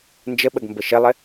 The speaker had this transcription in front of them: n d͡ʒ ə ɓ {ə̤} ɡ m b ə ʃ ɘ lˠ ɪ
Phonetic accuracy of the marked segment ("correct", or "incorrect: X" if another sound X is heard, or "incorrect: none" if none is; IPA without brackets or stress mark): incorrect: ə